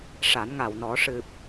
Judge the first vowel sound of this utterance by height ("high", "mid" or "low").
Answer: low